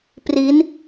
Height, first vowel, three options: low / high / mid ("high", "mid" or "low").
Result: high